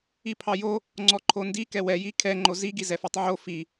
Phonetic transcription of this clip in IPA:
ipʰɑjo | ŋ͡ǀɔǃʰondi kɛwɛji kʰɛŋ͡ǃo ziɡi zɛfɑtˤʕo fi

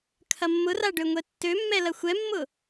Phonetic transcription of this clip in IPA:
kʰɐmːʊra ɖøŋʷɛtːømːɛ lɐxʷɛmːʊ

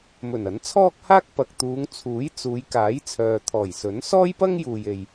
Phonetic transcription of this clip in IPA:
mɵ˨˩n ɐ˨˥nt͡sʰɔː˥k̚haː˥k̚ pɐ˨k̚t̪uː˨˧ŋ t͡sʰuː˨˥jt͡suː˨˧j kaː˨˥jt͡sʰœː˨t̪ʰɔː˨˩jsɵ˨˥n sɔː˥jpɐ˥ŋ juː˨je˨j

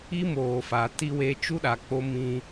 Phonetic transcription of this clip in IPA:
i˦moː˨fa˨ ti˦we˦ t͡ʃu˦ɗa˨k͡po˦ mĩ˦

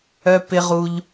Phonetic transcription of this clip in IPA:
œ˧ pɪ˧ ʁu˧ʎ

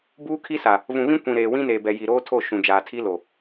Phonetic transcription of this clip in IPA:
buː˦kʰi˦sa˨ | vũ˨βĩ˦ kʷĩ˨ ɾeː˨wĩ˦neː˨bɛ˨ ji˨ɾoː˦tʰo˦˨ ʃũ˨ d͡ʒaː˨tʰi˦lo˨

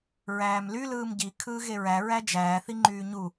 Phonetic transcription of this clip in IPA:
ɹæːmly lɯːmɟi kʰɯːɣeɹæ ɹæd͡ʒæː θiŋ͡ǃyːɲu

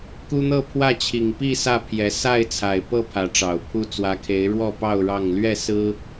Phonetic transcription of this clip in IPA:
ku˦n̪ɤ˥˨pʰwä˥˨ t͡ɕʰi˨˩ŋpi˥˨ sä˥˨pʰjɛ˨˦ sa˥˨ɪ̯t͡sʰa˨˩ɪ̯ pɤ˥˨ pʰä˨˦ʈ͡ʂɑ˨˩ʊ̯pʰu˦ t͡swä˨˦kʰe˨˦ɪ̯ ɻwɔ˥˨pɑ˥˨ʊ̯ ɻɑ˥˨ŋ lɥɛ˥˨sɹ̩˦

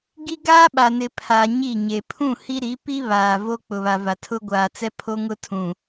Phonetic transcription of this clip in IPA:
ɡi˦ ɡaː˦ɓa˨nɪ˨ pʰa˨ ɲi˦˨ɲe˨ pʰũ˦˨ hi˦ ɾi˨˦pi˦ βaː˨ vo˦k͡pʊ˨βa˨va˨ tʰʊ˦ɡʷaː˨t͡sɛ˦pʰo˦ ŋʊ˦tʰũ˨

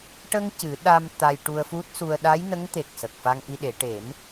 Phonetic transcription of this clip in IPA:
ʈə˧ŋ cɨ˨˩˦ɗa˧m t̪a˧jʈu˧ə̯fu˦˥t̚su˧ə̯ ɗa˧˥jnə˧˥ŋt̪e˨˩k̚ sə˨˩k̚fa˧ŋʔi˧ɗe˨˩˦ ʈe˨˩˦m

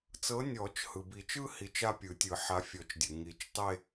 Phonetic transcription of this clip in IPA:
t͡sɤ˨˦nʲɔ˨˩˦t͡ʃ hɯ˩bi˨˩˦t͡ʃɯ˥˧ hi˨˦t͡ʃa˥˧pʲɯ˨˩˦tʲɯ˨˩˦ ħa˨˦fʲɔ˨˩˦t͡ʃdʲɯ˩ ŋi˨˩˦t͡ʃtˤe˥˧

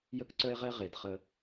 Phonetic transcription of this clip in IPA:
jə˦kǀœ˦e̯ʁɛ˦ ʁe˨dχə˦

